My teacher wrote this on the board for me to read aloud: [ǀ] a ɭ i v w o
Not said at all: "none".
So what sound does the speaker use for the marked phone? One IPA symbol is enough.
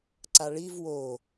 ǀ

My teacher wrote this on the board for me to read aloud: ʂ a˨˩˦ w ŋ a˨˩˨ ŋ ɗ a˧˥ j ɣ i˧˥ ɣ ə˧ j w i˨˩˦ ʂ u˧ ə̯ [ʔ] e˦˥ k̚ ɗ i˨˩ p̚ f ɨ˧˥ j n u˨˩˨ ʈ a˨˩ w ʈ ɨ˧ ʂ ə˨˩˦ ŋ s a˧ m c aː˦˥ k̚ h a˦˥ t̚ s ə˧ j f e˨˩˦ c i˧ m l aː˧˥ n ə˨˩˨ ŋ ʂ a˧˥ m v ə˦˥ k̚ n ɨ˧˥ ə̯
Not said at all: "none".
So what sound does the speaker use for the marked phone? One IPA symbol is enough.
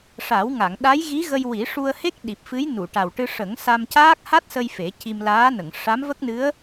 h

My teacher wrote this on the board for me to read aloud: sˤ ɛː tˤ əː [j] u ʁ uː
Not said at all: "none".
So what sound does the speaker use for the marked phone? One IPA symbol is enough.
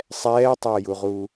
j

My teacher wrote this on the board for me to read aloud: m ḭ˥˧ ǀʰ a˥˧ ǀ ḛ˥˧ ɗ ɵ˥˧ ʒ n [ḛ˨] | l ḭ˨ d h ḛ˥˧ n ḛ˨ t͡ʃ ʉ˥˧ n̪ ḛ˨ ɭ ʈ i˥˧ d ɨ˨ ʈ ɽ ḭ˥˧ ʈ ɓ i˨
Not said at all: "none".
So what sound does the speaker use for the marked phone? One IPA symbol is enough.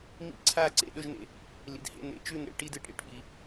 ḛ˨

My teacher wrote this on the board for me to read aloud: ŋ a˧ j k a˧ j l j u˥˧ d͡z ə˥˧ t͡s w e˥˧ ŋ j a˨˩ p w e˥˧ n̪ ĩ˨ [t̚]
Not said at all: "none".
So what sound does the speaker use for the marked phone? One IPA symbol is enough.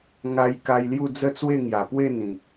k̚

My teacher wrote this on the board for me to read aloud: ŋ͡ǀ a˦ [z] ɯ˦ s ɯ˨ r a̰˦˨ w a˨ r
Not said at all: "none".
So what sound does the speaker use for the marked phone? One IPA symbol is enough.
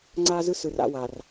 z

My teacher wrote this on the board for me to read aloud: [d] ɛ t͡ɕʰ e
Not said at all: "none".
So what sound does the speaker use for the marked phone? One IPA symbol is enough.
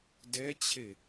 d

